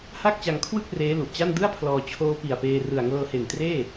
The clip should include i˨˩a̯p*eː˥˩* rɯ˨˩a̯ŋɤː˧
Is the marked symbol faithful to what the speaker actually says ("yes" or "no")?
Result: no